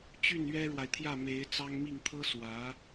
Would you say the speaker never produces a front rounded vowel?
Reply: no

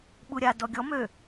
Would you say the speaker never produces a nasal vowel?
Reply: yes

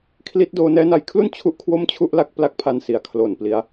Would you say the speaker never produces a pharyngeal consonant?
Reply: yes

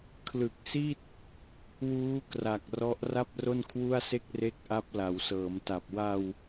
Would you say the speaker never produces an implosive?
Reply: yes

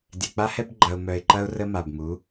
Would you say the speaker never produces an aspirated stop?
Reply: yes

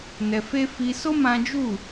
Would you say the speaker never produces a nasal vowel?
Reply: no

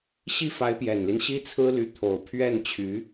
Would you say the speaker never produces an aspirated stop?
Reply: no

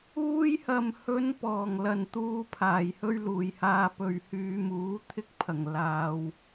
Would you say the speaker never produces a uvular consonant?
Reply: yes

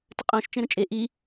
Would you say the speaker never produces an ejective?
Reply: no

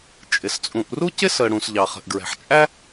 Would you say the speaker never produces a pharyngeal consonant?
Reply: no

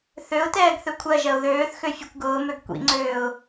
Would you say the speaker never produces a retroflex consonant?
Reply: yes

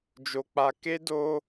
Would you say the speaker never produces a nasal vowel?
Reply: yes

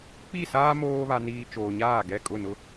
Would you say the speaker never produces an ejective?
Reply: no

